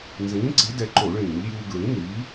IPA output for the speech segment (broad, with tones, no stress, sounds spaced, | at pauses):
n z ĩː˨˥ ǀ i˨˥ d ɛ˧ ǃ o˧˩˧ ɭ ĩː˧˩˧ ʎ j uː˧ ɡ ɹ ĩ˨˥ n iː˨˥